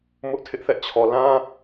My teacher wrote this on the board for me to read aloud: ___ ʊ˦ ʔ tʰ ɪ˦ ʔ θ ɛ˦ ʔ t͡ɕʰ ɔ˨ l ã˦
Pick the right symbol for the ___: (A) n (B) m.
B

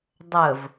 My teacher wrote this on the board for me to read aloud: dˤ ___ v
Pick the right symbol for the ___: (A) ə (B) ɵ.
A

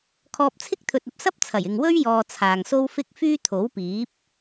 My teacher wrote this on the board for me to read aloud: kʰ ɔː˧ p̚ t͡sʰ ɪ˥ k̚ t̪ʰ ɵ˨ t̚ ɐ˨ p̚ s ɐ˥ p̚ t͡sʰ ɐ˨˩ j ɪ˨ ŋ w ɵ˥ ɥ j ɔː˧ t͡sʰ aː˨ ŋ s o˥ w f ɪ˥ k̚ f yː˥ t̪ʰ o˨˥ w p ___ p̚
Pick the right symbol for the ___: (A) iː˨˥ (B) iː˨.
A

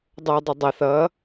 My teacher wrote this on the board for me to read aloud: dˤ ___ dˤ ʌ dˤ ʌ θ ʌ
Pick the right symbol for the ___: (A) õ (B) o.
B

